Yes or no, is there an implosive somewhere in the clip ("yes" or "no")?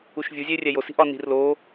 no